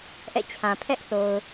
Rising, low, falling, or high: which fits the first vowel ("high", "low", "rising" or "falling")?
falling